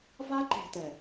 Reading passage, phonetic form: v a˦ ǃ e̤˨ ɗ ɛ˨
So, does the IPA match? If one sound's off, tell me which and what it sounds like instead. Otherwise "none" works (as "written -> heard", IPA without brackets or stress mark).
ɗ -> t